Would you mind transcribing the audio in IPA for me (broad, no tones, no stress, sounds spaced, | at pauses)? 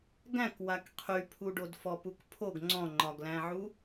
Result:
ɡ æ̃ k w a k qʰ y pʰ u ɖ o d f ɔ p u k pʰ o ɡ ŋ͡ǀ ɔ̃ ŋ͡ǃ ɒ ɡ l æ̃ ʕ u